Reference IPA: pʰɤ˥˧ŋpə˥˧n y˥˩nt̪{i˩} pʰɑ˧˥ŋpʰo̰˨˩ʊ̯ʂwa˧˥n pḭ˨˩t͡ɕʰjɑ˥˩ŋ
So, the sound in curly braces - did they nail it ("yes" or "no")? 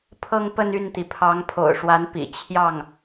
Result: yes